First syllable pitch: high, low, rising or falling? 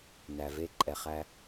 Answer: low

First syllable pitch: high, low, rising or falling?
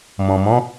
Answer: low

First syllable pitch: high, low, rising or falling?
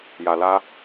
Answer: low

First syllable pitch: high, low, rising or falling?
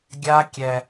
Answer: high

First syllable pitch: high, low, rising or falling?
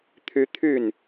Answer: high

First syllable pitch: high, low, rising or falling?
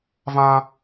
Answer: high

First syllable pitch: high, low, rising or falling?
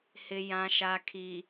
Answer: low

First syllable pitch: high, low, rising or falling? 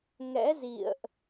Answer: rising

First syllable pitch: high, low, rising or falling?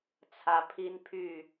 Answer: rising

